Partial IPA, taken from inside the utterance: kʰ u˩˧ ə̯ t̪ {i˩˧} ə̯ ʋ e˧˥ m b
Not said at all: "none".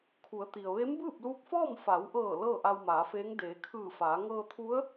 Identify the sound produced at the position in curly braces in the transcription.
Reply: i˩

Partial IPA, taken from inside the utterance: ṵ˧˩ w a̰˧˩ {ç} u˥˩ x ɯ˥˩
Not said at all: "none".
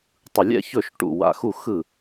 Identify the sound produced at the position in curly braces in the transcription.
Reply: x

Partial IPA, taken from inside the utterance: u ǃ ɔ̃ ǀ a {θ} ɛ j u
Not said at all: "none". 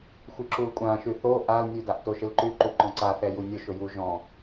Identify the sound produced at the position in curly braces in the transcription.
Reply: θ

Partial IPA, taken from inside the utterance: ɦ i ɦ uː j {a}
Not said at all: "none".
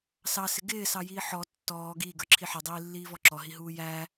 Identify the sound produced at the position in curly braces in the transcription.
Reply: æ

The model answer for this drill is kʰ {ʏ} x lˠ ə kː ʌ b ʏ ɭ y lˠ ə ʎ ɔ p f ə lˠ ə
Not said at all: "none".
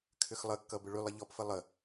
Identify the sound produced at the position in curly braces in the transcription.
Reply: ʏ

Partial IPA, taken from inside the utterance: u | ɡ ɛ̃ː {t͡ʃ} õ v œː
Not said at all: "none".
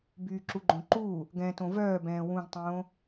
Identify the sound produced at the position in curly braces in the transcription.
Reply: t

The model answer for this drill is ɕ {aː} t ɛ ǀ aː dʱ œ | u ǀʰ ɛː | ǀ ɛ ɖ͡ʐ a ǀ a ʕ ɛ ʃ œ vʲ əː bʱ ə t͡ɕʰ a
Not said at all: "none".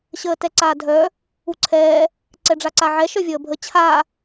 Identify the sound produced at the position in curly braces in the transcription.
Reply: əː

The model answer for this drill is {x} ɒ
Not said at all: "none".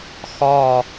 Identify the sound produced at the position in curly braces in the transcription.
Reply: x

